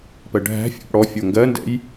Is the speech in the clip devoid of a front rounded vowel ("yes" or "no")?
yes